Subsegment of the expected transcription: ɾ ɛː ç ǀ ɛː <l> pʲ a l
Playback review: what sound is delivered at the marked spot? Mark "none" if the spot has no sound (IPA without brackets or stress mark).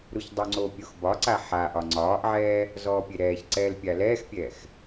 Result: l